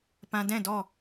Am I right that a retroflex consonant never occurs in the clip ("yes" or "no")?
yes